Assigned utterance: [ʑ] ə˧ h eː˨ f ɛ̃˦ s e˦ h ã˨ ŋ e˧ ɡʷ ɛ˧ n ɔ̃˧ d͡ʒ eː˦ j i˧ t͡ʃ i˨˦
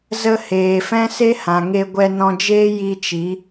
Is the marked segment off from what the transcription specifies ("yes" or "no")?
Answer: yes